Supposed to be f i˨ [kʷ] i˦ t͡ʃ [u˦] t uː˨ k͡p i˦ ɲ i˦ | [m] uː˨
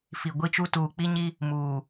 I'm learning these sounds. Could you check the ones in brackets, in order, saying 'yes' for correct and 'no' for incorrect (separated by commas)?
no, yes, yes